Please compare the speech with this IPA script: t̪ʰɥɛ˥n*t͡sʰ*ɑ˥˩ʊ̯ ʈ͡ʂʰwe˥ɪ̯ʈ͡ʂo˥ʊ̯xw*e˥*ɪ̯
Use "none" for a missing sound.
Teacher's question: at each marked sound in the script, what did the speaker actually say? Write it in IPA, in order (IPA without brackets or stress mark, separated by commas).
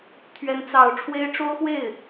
t͡s, e˥˩